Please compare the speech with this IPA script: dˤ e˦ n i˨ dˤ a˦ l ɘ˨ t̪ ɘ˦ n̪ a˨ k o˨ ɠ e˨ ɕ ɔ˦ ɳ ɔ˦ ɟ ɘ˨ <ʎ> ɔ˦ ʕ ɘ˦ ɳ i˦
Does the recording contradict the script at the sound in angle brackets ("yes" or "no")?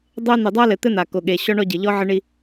no